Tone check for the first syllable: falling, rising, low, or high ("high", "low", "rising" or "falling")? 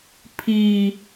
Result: high